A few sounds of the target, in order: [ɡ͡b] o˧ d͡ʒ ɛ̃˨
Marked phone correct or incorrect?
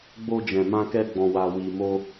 correct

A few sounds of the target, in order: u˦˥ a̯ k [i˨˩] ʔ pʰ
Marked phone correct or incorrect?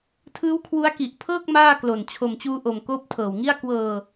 correct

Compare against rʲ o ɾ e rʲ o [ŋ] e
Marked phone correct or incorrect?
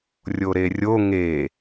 correct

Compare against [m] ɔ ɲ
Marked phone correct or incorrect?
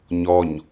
incorrect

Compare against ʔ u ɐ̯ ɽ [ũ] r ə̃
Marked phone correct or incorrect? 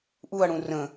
correct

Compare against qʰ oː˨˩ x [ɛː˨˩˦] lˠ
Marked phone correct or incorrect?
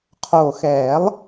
correct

